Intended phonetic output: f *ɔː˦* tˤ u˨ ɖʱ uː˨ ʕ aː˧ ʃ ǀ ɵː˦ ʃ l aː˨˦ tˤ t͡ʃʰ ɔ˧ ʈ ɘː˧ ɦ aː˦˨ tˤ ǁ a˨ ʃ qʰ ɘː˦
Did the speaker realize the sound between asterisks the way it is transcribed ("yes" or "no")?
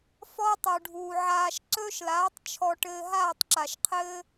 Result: yes